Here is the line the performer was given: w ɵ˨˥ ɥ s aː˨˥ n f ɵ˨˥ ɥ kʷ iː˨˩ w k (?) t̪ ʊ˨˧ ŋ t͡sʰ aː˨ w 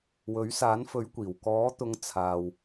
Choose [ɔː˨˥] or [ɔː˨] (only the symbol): ɔː˨˥